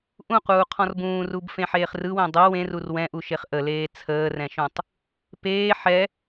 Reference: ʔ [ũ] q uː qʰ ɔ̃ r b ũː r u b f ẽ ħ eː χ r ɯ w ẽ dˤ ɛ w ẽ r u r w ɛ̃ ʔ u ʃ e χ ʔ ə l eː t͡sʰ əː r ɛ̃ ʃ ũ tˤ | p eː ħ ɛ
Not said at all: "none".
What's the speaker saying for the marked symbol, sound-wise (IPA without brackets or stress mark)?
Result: ũ